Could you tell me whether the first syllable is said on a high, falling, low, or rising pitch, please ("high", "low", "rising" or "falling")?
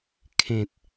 low